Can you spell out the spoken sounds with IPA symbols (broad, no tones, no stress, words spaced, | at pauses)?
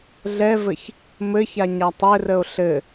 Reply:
ɮɛvɘç | mɘça ɲatˤɘrəo̯ ɬɘ